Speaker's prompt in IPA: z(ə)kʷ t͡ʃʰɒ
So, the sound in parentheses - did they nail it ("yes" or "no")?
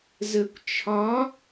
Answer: yes